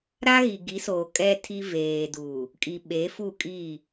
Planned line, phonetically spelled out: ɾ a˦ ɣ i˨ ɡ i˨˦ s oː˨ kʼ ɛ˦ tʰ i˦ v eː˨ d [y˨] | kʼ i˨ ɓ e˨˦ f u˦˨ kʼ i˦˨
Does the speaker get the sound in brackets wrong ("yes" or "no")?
yes